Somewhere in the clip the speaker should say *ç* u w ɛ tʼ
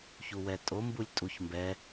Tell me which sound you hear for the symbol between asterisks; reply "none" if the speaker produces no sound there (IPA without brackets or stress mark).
ç